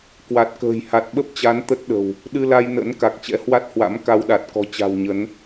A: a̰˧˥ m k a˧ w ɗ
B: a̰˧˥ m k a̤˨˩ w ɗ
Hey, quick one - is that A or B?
A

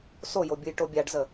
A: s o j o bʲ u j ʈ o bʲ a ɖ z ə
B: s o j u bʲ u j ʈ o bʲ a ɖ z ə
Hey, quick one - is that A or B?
A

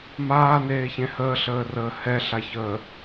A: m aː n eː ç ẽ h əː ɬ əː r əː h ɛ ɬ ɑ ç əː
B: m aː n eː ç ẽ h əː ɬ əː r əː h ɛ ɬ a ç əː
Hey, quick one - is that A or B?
B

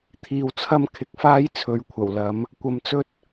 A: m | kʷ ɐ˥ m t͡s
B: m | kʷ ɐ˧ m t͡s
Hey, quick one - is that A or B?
B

